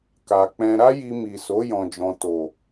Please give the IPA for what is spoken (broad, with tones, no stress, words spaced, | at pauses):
ka˨k͡pɛ̃˧ ɾa˦ji˧mi˨so˨˦ jɔ̃˧d͡ʒɔ̃˧ to˨